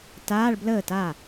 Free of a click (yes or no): yes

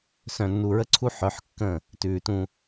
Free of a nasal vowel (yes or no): no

